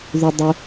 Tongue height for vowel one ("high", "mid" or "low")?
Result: high